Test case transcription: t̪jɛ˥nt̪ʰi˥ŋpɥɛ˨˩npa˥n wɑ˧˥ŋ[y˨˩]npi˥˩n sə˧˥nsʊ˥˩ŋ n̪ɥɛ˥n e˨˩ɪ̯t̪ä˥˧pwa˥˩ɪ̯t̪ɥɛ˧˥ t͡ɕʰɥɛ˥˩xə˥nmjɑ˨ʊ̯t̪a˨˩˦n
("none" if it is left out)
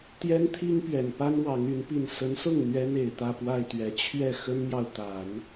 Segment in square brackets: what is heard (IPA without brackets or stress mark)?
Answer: y˧˥